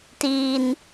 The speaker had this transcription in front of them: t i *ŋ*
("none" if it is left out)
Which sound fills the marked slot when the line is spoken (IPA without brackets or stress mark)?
n